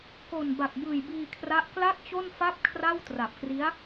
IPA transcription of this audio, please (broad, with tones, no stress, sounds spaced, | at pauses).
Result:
k o˨˩ n b a˨˩ k̚ b ɯː˨˩ j b iː˧ kʰ r a˦˥ ʔ k l a˥˩ k̚ t͡ɕ o˥˩ n f a˥˩ p̚ kʰ r a˥˩ w t r a˨˩ p̚ k r i˦˥ a̯